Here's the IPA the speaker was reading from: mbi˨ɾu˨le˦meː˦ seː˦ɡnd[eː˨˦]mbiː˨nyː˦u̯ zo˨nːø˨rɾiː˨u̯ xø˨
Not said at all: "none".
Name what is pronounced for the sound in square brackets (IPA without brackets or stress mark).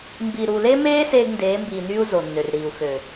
eː˨˦